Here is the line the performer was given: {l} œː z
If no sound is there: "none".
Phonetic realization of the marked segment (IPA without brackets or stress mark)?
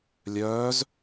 lʲ